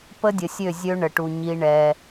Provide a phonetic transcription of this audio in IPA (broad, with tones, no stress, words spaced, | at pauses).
pə˦dʲə˨sʲø˦˨zʲø˦ ɳə˨ʈu˨ ɲi˦ɳɛ˦